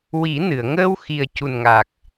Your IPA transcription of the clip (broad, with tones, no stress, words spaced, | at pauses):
wi˨˩˦ nɨ˨˩˨ə̯ ŋəː˧w xi˨˩ə̯cu˨˩nŋa˨˩k̚